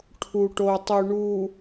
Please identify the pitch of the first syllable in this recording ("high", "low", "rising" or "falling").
low